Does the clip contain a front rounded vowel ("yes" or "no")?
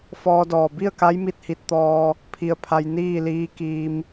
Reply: no